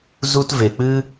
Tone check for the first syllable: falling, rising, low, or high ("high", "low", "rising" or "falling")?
high